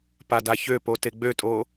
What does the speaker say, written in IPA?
p a d a ç ø p o t e ɡ͡b ø tʼ o

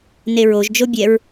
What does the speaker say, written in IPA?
n e ɹ o ʒ d͡ʒ o bʲ ɛ ɹ

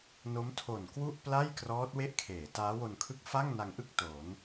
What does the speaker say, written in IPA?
n o˦˥ m tʰ o˨˩ n k w u˥˩ ʔ p l a˥˩ j k r ɔː˦˥ t̚ w e˥˩ ʔ kʰ eː˩˦ t aː˦˥ w o˧ n kʰ ɯ˥˩ k̚ f a˥˩ ŋ n a˧ ŋ ʔ ɯ˥˩ k̚ t o˩˦ n

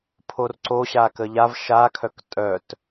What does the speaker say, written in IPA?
pʰ o r ǀ o ɕ a k ə ʎ a v ʃ a kʰ œ k tʼ œ t

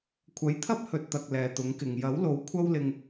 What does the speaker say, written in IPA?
kʷʰ ɐ˨˥ j t̪ʰ ɐ˥ p̚ h ɵ˨ t̚ t̪ ɐ˨ k̚ l ɛː˨ t̪ ʊ˨˥ ŋ k ɪ˨ ŋ j ɐ˨˥ w l o˨˥ w kʷʰ ɐ˥ w l ɪ˧ ŋ

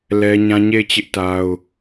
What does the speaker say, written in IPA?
l ɛ˦ ɲ ã˦ ɲ e˦˨ ɪ̯ t͡ɕ ɪ˦ ʔ t a˦ ʊ̯

